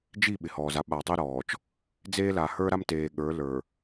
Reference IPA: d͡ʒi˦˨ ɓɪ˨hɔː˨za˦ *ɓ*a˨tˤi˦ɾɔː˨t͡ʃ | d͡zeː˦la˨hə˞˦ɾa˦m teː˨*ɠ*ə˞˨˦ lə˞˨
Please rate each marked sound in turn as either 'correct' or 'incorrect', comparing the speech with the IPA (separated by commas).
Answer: correct, correct